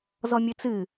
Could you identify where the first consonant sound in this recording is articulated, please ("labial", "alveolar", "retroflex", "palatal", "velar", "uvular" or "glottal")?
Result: alveolar